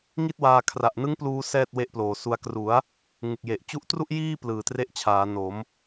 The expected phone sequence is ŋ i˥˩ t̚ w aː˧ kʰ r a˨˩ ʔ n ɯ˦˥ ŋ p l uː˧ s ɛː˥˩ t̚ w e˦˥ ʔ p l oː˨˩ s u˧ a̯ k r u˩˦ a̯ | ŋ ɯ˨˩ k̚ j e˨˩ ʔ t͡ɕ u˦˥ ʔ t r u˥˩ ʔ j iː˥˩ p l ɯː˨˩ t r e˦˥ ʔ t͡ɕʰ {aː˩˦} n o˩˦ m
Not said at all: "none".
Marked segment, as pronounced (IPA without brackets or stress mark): aː˩˦